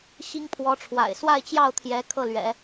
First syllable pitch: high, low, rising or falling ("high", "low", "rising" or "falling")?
high